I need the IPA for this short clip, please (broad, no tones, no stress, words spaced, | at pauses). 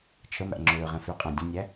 t͡ʃʰəmæ̰ ŋ͡ǁøːʁɛ̃føqʼæ̃ dʲə̃nʲæ